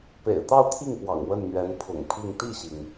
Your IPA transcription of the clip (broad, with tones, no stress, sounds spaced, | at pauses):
p ḛ˨˩ ɪ̯ t̪ ɑ˥˧ ʊ̯ t̪ʰ i˥˩ ŋ p w ɑ̰˨˩ ŋ w ə˥˩ n n̪ ɥ ɛ˧˥ n pʰ ʊ̰˨˩ ŋ pʰ i˥˧ ŋ t̪ i˥˩ ɕ i˩ ŋ